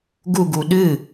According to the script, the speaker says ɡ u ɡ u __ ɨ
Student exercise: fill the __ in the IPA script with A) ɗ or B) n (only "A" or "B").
A